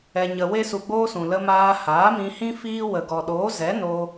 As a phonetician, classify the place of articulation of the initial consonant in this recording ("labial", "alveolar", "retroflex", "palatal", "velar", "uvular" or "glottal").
palatal